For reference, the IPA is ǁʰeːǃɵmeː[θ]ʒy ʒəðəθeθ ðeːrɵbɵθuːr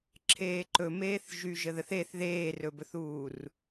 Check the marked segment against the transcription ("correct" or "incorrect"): correct